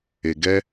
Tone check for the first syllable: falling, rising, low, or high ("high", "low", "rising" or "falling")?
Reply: low